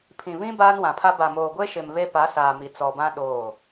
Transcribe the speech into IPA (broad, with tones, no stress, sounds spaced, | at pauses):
pʰ ĩ˨ β ĩ˦ b aː˦ n w ã˨ pʰ a˦ b a˨ m oː˨ ɡʷ e˦ ʃ ɪ˨ m β e˦ p a˨˦ s aː˨ m i˨ t͡s ɔ˨ b ã˦ ɗ oː˦˨